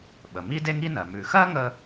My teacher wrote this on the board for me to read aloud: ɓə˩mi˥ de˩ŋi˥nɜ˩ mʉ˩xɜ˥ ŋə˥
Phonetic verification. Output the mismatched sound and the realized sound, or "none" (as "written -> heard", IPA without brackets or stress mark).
e˩ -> e˥